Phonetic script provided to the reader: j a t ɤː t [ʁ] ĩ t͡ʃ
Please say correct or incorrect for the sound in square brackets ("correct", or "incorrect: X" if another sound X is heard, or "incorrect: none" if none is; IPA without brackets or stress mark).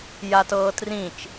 incorrect: r